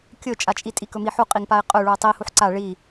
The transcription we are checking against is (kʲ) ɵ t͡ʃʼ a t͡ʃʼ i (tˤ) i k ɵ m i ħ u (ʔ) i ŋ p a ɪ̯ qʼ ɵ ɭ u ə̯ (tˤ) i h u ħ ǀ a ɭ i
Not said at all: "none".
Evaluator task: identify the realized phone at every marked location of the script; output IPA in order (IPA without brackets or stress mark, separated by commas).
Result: kʲ, tʼ, qʼ, tˤ